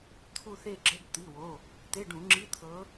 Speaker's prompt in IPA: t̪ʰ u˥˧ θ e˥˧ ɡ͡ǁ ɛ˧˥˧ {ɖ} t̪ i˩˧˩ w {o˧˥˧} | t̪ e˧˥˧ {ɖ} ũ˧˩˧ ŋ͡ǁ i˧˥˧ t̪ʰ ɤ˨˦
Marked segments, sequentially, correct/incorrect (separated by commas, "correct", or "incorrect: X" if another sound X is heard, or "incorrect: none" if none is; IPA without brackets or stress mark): incorrect: ɡ, incorrect: o˩˧˩, correct